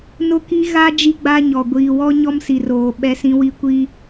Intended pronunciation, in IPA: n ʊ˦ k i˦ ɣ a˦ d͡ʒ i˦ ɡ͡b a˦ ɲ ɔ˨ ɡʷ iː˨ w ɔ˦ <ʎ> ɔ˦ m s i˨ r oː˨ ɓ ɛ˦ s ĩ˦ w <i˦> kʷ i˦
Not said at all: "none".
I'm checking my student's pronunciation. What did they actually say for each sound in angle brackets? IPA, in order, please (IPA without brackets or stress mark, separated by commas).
ɲ, i˦